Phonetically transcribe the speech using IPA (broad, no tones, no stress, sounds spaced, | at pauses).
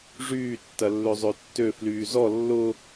ʐ yː tː ɐ lː ø zˤ ø tː ø f l yː z ɔ lː ʊ